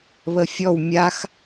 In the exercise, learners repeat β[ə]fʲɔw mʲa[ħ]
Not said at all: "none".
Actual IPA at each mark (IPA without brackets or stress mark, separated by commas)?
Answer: ə, x